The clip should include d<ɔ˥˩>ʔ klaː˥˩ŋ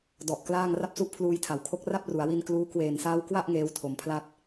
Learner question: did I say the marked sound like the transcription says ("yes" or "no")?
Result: no